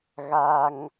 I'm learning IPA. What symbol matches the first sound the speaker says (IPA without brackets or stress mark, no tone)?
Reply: ɣ